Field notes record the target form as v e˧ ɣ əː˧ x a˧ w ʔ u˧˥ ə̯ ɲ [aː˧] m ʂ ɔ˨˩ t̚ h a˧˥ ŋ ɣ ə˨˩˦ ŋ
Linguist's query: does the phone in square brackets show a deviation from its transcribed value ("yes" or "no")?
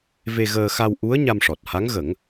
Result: yes